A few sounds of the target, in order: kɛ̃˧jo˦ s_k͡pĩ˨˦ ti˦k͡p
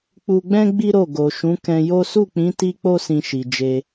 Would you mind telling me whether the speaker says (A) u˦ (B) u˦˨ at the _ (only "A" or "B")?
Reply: B